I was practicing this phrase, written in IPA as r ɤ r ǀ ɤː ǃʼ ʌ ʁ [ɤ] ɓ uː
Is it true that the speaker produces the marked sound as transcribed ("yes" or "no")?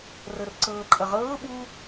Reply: no